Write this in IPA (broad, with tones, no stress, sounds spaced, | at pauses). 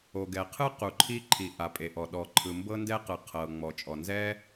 o˩ ɡ ɛ˩ qʰ ɯ˥ q u˩ ǃʰ i˥ ǃʰ i˩ ʔ a˩ pʼ e˩ ʔ ɔ˩ ɗ ɔ˩ ǃʰ ɯ˩ m b ɤ˥ n d ɛ˥ q ɯ˩ qʰ ɤ˩ ŋ͡m ɔ˩ t͡ʃʼ ɔ˩ n z ɛ˥